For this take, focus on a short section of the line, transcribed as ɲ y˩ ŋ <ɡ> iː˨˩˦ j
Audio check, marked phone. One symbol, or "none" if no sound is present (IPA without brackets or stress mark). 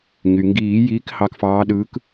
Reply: ɡ